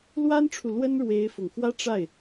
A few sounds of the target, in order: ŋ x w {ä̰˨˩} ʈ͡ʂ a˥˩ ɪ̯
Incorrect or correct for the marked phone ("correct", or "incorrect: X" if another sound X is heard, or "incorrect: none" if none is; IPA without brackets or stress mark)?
incorrect: ä˥